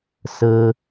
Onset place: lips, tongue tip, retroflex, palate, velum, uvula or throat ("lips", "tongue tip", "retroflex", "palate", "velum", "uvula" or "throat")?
tongue tip